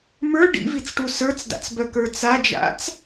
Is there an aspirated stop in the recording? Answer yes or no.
no